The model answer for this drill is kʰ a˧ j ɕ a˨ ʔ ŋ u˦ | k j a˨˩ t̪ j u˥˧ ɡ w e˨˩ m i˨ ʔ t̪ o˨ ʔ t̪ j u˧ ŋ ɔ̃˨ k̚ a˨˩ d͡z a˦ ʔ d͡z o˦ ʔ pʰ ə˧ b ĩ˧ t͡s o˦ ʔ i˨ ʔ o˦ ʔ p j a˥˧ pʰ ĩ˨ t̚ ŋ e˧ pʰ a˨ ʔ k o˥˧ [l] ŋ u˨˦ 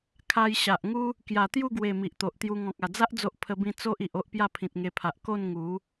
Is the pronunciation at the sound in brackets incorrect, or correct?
incorrect